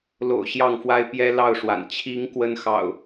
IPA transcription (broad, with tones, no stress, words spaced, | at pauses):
lo̰˨˩ʊ̯ ɕjɑ˥˨ŋfwa˦ɪ̯ pjɛ˦lɑ˥˨ʊ̯ʂwa̰˨˩n t͡ɕʰi˨˦ŋ kwə˦nxɑ̰˨˩ʊ̯